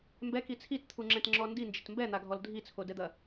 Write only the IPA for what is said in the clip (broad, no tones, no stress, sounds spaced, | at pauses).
m b ɛ k i t͡sʰ i t t̪ʰ u ŋ͡ǁ ɛ̃ t ŋ͡ǁ ɔ n d i n d͡ʒ ɘ t m b ɛ n̪ a ɡʱ ɔ l dʱ i t͡sʰ o d ɛ d̪ ɐ